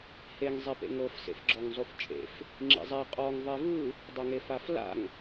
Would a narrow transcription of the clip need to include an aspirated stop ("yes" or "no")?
no